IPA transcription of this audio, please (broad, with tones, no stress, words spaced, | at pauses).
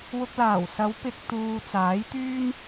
wʊ˧k̚laː˨˩wsɐ˨˥w pɪ˨k̚ t̪uː˨ t͡saː˨˥jt̪yː˥n